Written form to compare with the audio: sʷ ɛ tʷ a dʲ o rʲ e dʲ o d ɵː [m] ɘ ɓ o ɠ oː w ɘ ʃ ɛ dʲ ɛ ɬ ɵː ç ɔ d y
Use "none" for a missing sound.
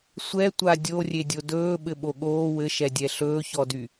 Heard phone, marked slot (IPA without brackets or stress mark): ɓ